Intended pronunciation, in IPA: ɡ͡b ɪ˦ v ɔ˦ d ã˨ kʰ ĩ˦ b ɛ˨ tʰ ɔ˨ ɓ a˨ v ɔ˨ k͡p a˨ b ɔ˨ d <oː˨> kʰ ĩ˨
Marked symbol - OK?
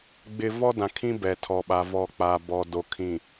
no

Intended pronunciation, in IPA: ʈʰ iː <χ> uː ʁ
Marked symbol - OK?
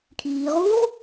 no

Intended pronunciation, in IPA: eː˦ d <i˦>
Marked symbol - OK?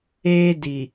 no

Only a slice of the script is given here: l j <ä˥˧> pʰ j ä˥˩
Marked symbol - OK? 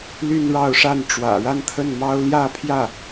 yes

